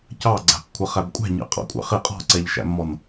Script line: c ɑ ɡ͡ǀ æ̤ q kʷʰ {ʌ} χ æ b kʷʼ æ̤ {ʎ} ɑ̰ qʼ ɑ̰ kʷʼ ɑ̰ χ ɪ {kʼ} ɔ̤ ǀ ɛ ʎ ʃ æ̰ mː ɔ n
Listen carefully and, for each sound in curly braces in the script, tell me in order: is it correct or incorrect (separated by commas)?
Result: correct, incorrect, incorrect